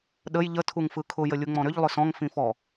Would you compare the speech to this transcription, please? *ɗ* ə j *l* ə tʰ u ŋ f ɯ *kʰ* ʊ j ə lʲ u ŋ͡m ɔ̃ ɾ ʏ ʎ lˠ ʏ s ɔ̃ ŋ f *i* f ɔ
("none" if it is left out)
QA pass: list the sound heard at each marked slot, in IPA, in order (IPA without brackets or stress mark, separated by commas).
ɗ, ʎ, kʰ, ĩ